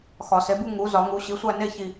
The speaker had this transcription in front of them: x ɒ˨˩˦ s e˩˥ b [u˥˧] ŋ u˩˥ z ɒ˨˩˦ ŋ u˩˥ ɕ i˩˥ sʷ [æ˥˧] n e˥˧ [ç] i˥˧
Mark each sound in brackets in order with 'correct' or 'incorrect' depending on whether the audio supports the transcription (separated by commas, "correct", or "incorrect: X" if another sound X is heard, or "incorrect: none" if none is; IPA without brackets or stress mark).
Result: correct, correct, correct